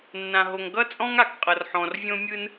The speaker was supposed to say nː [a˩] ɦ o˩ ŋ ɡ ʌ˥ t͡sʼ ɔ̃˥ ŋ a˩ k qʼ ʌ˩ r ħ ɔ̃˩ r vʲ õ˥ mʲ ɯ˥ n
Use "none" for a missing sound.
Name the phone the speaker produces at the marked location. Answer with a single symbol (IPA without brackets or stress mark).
ã˩